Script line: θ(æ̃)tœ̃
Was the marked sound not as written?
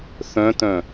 yes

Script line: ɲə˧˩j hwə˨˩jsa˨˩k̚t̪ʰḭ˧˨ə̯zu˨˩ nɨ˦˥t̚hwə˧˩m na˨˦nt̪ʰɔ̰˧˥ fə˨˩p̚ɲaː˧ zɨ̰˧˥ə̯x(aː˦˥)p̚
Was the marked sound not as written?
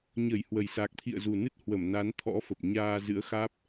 no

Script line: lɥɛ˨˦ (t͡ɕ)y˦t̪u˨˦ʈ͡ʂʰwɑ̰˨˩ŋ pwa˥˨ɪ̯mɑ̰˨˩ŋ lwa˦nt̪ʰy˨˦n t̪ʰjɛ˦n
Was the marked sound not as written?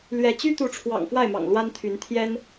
no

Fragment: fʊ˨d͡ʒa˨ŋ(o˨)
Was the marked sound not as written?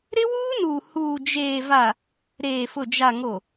no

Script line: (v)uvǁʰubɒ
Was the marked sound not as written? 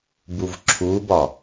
yes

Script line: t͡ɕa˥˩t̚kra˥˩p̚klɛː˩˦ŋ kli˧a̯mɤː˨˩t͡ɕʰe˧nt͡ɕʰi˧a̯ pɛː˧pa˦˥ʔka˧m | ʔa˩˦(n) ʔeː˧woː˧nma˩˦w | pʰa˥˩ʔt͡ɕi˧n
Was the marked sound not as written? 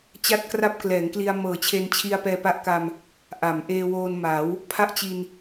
yes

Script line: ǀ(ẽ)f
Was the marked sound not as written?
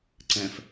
yes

